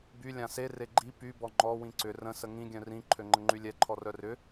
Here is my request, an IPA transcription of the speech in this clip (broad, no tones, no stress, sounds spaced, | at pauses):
b y lʲ ã s e r e ɡ͡ǃ i p y b ɔ ŋ͡ǃ ɔ w ĩ ǀ ʏ r ə̃ s ə ŋ ĩ ɡʲ œ̃ r ĩ ǃʰ ø ŋ͡ǃ ə ŋ͡ǃ y lʲ ɛ ǃʰ ɔ r œ r ʏ